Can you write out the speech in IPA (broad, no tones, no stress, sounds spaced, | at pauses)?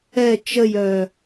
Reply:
ɛ t͡ʃ ə j œ